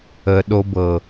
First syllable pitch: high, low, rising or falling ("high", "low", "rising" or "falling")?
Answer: low